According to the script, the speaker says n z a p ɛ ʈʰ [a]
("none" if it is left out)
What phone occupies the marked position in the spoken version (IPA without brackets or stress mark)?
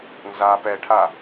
a